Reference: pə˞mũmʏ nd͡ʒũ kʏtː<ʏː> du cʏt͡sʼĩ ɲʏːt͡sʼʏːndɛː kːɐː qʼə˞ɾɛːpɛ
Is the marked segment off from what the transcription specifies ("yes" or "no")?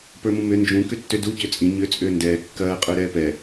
yes